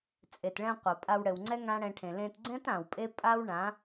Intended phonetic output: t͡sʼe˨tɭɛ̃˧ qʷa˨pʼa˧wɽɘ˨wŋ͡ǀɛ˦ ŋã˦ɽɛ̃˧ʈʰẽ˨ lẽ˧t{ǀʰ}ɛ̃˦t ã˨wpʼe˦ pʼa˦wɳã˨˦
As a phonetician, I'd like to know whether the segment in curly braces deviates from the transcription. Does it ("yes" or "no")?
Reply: yes